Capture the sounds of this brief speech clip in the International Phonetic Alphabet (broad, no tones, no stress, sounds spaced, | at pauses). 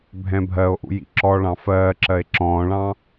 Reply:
bʱ ɛ̃ bʱ ɜ o̯ ʔ ṵ j ḭ ǁ ɔ ɭ ɑ̃ f ɜː ǁ ɜ e̯ ǁ ɔ̃ː ɭ ɑ̃